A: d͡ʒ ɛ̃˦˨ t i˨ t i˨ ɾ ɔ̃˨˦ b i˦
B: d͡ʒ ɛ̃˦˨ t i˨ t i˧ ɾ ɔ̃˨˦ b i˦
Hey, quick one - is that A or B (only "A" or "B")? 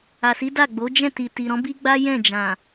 A